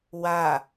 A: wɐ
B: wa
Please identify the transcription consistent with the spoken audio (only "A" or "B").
B